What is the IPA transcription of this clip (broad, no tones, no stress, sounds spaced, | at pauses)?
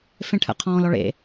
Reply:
f ẽ ʈʰ ə̰ qʰ ɔ̃ː l ɔ ɭ ḛ